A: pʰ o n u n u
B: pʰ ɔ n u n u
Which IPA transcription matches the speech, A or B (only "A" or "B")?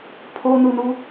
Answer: A